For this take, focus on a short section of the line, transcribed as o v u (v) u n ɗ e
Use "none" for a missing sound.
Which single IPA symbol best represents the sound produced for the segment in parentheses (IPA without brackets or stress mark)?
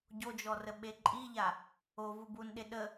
b